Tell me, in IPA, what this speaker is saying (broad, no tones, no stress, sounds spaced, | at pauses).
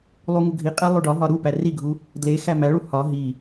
lˠ u ŋ u ɡʱ i qʼ æ lˠ o ɖ ɒ ɦ ɒ ɾ u p æ r i ɡʱ u | d l e x æ m æ ɭ u h ɒ ɦ i